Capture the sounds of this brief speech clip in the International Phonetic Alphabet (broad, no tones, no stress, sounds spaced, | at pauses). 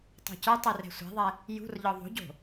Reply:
tˤ ṳ c ə˞ tˤ i r ɛ̤ sʷ ɛ̤ ðˤ ɛ | j ṳ r ʎ ɒ ðˤ o̤ ɟ o̤